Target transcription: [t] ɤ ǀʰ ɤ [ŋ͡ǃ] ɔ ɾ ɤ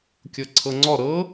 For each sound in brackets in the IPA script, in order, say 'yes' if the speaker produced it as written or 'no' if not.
no, no

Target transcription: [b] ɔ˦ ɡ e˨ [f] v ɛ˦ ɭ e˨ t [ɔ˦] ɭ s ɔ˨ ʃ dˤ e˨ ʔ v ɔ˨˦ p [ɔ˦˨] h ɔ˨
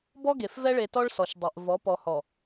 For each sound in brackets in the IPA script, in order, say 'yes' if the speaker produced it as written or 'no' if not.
yes, yes, yes, no

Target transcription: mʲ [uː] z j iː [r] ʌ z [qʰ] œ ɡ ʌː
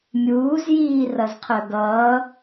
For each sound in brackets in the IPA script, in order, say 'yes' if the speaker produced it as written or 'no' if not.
yes, yes, yes

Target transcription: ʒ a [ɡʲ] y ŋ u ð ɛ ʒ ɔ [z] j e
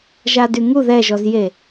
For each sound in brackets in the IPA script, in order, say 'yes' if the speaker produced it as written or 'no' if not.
no, yes

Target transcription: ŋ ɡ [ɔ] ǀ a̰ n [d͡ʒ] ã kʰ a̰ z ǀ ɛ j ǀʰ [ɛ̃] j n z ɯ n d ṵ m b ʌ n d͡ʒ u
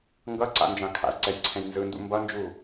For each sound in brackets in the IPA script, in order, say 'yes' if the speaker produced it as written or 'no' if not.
no, yes, yes

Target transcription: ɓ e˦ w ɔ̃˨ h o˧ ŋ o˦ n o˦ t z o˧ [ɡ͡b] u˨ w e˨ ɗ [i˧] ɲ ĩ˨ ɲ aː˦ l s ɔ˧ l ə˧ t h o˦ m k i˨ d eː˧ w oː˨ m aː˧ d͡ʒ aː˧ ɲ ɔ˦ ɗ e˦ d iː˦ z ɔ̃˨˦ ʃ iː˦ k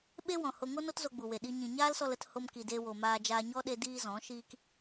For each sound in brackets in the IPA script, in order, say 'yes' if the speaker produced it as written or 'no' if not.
yes, yes

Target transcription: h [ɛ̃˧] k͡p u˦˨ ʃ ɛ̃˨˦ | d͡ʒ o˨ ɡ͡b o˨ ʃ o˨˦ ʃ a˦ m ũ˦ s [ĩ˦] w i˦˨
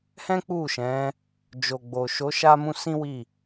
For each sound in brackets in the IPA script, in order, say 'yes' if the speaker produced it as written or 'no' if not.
no, yes

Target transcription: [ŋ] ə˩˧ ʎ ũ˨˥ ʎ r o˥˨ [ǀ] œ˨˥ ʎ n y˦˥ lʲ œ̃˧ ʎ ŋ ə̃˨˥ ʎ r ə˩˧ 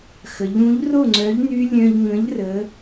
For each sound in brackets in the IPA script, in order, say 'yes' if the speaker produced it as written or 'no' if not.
no, no

